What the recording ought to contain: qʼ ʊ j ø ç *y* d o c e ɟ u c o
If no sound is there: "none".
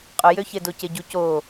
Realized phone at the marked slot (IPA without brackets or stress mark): e